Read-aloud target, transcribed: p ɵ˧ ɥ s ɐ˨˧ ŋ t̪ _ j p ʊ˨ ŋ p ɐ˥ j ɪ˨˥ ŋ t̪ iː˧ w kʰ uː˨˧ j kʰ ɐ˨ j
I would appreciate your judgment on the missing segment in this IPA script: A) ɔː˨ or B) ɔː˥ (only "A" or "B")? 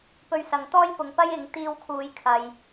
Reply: B